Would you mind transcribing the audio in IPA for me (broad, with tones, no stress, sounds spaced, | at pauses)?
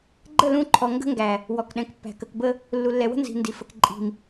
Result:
ɡ͡ǃ ə˦˨ l ũ˦˨ ǃʰ ɔ˨ ŋ ɡ ə̤˦ ŋ ɡ æ˨ | w ɔ˨ k ɗ ɛ̃˨ k pː æ̤˨ k ə˨ k b ə˦ | lː u˨ lː ɛ˨ w ə̤˦ n z i̤˨ n d i˨ f ə˨ k ǃʼ i̤˨ m